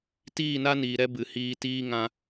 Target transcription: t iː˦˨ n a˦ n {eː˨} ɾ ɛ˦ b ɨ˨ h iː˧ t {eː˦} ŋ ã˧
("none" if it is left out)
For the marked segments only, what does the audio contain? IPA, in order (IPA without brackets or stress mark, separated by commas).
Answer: iː˨, iː˦